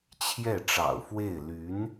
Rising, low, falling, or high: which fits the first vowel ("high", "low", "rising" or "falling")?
falling